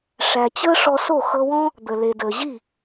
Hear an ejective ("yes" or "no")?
no